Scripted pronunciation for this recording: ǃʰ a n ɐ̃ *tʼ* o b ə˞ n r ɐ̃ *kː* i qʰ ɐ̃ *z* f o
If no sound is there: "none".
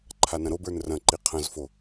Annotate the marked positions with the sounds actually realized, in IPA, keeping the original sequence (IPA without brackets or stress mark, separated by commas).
ɾ, ǃ, z